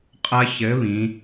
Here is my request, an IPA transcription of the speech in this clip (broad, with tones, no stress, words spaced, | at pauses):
qʼɐ˦˥çɘ˨˥ βĩ˩˧